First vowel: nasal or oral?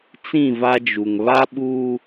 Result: nasal